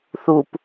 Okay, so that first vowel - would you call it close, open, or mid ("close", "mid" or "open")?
close